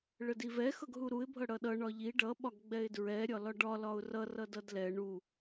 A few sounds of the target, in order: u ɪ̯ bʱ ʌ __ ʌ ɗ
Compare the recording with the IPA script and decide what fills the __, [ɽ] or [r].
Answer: ɽ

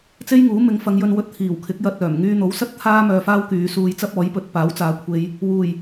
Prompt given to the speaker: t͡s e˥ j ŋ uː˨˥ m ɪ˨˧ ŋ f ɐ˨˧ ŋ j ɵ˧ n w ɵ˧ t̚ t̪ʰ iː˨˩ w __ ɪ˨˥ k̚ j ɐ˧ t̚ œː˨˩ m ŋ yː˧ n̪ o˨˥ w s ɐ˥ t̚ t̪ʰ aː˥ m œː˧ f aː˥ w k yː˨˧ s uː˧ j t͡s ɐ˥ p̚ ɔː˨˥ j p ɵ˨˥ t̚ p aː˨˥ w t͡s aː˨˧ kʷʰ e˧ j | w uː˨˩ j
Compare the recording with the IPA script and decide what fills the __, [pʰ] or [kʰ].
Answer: kʰ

